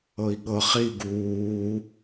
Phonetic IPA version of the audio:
ɤ i̯ ɠ ɤ χ i ɡ uː

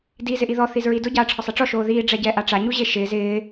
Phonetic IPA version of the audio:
d i z ɪ ʔ i ð ɔ θ i z ɹ i d ʊ ɟ aː ʈ͡ʂʰ ɔ sˤ ɛ ʈ͡ʂ ɔ ʃ oː ð iː ɖ͡ʐ ɛ ɟ ɛː ʔ a ʈ͡ʂ a ɲ u ʑ e ʃ ɪː z ɪː

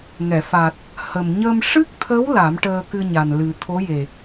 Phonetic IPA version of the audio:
ŋ ɛ˨˩˨ f a˨˩ t̚ | h ə˨˩ m ɲ əː˧ m ʂ ɨ˦˥ k̚ t̪ʰ ə˧˥ w l a˨˩˦ m ʈ əː˧ k ɨ˧ ɲ a˨˩ n l ɨ˨˩ t̪ʰ o˧˥ j e˨˩

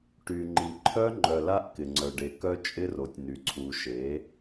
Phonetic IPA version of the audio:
ʈ y˨ ŋ͡ǃ i˨ ǃʰ œ˦ ŋ͡ǃ œ˨ l a˦ ʔ k ɪ˨ ŋ͡ǀ œ˨ ɖ e˨ k œ˦ t͡ʃʼ ɪ˦ r o˨ tʲ n y˨ ǀʰ u˨ ʃ e˨˦

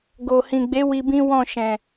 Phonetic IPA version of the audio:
ɡ o˨ h ĩ˨ ɡ͡b e˨˦ w i˧ b ĩ˦ w ɔ̃˦˨ ʃ ɛ̃˨

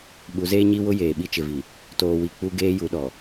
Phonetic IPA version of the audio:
ɓ u˨˦ z eː˦ ɲ i˦ w ʊ˦ j eː˨ ɓ i˦ t͡ʃ ɪ˨ v i˨ | t oː˨ w i˨ k͡p u˦ ɡ eː˦ j u˨˦ ɗ ɔ˨

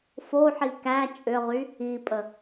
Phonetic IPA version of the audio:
f o ħ i k æ t͡ʃʼ ʏ ʁ y | i pʼ ə

